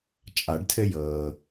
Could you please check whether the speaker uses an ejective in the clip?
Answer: yes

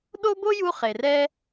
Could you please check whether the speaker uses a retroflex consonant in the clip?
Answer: no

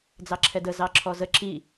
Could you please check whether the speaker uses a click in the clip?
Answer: yes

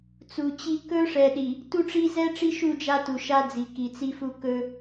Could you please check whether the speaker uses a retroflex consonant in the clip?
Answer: yes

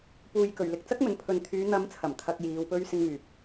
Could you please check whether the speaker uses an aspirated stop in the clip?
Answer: yes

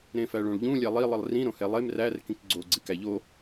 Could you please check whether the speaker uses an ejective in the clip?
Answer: no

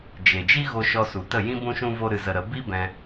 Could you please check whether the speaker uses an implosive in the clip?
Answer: no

